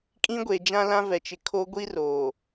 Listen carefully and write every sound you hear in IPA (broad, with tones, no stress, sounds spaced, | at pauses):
kʼ ĩ˦ ɡʷ e˨ d͡ʒ ã˦ l ã˦ v ɛ˨ t͡ʃ ɪ˨ kʰ o˦ ɡʷ i˦ r oː˨